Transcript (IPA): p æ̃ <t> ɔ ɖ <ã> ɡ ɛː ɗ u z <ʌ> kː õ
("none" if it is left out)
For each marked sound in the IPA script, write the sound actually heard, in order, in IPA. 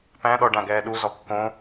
ɗ, ã, ɔ

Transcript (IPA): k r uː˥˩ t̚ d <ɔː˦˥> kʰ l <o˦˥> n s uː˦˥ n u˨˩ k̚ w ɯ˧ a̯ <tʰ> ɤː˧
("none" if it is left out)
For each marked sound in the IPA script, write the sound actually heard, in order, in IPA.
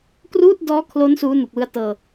ɔː˦˥, o˦˥, t

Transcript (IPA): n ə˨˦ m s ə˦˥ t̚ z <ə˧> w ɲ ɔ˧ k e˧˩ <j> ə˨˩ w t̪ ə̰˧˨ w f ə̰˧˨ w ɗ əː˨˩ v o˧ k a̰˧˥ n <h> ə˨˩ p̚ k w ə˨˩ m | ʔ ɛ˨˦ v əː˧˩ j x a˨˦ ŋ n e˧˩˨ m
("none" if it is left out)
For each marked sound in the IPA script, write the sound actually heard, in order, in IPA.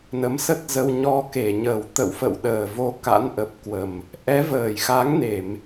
ə˧, ɲ, ʔ

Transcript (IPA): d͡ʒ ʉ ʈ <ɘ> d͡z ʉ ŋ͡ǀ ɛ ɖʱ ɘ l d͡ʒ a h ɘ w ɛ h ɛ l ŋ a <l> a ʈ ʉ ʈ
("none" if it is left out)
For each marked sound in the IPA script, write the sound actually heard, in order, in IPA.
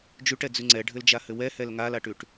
ɛ, l

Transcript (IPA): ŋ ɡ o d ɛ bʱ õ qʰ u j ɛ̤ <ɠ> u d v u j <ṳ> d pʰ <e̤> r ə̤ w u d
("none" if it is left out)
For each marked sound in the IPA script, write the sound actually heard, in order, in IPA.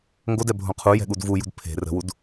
ɠ, ṳ, e̤

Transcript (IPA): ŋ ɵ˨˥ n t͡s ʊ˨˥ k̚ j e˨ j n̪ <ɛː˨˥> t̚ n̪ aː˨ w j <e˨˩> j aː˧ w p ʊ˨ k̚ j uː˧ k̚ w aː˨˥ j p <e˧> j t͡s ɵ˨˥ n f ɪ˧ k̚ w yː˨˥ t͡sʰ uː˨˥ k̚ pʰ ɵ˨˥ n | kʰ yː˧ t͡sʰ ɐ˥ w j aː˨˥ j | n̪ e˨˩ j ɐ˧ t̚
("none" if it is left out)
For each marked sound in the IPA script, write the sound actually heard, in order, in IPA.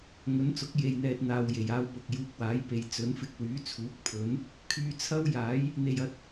ɛː˨, e˨˩, e˨

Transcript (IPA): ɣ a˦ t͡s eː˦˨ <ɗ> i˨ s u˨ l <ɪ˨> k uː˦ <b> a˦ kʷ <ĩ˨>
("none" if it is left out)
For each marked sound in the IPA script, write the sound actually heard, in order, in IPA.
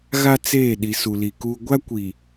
ɗ, i˨, ɡʷ, i˨

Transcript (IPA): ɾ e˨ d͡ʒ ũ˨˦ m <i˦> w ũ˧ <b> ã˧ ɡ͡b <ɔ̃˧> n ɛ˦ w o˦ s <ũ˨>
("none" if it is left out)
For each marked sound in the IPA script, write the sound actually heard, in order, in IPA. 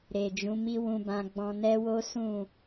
i˦, b, ɔ̃˧, ũ˦˨

